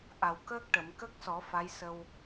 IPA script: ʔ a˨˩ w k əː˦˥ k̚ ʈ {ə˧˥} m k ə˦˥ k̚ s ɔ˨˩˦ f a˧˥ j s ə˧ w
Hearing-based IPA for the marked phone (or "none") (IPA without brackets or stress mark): ə˨˩˨